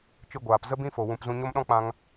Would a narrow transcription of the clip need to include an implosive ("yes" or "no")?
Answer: yes